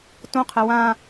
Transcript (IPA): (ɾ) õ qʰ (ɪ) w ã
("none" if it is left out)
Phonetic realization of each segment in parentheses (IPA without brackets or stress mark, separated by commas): t, ɛ